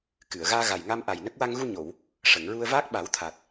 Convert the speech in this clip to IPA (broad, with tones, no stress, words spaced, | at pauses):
kɨ˨˩˨ə̯ ɣaː˧ɣa˨˩jŋa˧mʔa˨˩j nə˦˥k̚ wa˧ŋɣu˧ɲo˨˩˨w | ʂə˨˩˨ŋɹu˧ə̯vaː˦˥k̚ ɓa˨˩˦wt̪ʰa˨˩k̚